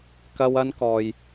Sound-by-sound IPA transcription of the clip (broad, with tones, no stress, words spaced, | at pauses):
kɐ˧w ɐ˧nkɔː˨j